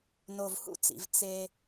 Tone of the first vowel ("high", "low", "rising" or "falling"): low